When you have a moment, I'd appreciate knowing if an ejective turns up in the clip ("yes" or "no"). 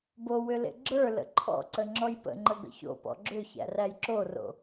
no